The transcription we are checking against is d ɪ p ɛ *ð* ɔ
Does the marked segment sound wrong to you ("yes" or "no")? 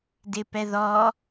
no